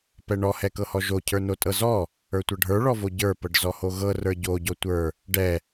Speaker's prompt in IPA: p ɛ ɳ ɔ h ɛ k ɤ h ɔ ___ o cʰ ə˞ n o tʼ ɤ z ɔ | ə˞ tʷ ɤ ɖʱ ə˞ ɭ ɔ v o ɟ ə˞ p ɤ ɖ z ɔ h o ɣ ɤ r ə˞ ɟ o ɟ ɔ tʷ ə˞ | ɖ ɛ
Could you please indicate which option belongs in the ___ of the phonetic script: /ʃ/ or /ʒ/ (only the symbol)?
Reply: ʒ